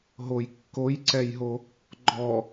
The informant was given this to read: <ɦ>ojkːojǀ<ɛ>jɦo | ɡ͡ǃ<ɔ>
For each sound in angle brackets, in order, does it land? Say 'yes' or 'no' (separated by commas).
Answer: yes, yes, yes